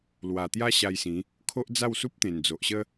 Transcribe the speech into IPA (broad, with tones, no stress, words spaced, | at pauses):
lwa˨˩t̪ja˦ ɕa˧jsĩ˨˦ | kʰo˦ʔd͡za˥˧wsu˦p̚ t̪ẽ˨˩nd͡zo˨ʔɕə˦